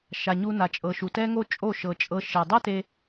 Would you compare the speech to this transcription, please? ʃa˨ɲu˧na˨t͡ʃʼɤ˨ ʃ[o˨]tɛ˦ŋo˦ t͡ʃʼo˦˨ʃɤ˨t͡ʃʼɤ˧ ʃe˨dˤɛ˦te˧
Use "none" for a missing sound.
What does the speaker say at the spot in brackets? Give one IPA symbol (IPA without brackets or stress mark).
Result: u˨